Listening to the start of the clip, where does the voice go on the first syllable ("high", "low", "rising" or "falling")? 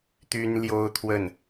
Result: high